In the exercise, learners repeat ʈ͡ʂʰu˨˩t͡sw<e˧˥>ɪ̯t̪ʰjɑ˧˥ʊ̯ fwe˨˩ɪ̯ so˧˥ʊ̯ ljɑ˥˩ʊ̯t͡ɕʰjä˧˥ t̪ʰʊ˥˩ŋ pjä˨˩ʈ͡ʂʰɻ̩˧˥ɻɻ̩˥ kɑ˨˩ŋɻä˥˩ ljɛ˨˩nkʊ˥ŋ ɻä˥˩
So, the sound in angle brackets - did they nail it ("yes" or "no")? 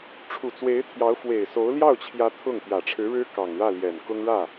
yes